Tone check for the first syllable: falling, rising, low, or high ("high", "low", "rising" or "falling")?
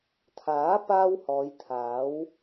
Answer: rising